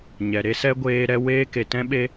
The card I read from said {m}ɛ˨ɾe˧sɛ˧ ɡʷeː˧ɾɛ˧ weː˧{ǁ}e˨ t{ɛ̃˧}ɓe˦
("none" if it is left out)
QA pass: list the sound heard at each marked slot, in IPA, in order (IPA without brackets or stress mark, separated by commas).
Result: ɲ, k, ɛ̃˦